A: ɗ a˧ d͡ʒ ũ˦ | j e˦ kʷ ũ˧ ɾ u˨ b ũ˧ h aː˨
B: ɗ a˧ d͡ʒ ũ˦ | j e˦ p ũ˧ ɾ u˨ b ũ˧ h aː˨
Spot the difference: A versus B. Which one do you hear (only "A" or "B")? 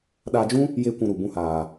A